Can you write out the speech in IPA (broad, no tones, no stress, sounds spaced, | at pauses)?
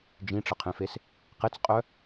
d͡ʒ ĩ ʈ͡ʂ ə qʰ ẽ f e s | q e t͡s qʼ œ